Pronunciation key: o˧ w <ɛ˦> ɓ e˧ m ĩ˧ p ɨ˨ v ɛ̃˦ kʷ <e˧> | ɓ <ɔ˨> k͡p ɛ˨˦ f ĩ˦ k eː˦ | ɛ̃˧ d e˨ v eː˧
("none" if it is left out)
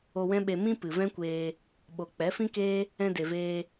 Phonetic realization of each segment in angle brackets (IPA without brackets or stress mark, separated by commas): ɛ̃˦, eː˧, o˨